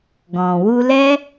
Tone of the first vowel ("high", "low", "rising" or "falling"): low